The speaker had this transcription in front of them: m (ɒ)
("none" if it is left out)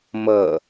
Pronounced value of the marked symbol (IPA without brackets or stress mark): ʌ